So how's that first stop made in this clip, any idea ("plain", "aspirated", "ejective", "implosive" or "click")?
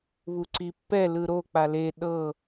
click